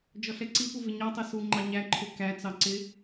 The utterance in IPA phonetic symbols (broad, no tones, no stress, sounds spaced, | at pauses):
d͡ʒ ɔ ɬ ɛ ǀ i p u v ɪ ɲ ɑ tˤ ɛ s u ŋ͡ǃ ɑ ɲ æ ǃʰ ʊ k æ t͡s ɑ ǀ ɪ